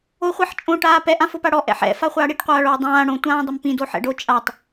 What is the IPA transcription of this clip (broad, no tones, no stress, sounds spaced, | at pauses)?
o χʷ ɛ ħ t͡ʃʼ õ ʈ aː p ɛ ʔ ã f ʊ p a ɽ ɔ ʔ ɛ̰ ħ ɛ̰ f a χʷ aː ɽ i ʈ qʷ aː ɭ oː dˤ ãː ɽ õ tʷ ãː dˤ ʊ m p ĩ d o ħ ɛ̰ ɖ o t͡ʃʼ a tˤ